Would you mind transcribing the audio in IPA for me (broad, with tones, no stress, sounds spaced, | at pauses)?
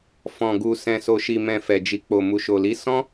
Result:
f ɔ̃˨ ɡ u˨ s ɛ̃˨ s o˨ ʃ i˨ m ɛ̃˨ f ɛ˨ d͡ʒ i˨ k͡p o˨ m u˨ ʃ o˨ l i˨˦ s ɔ̃˦